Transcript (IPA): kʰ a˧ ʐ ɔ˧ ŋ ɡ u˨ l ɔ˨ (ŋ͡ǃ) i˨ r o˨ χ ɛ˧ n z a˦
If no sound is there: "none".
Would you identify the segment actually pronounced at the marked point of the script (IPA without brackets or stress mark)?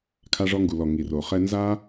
ŋ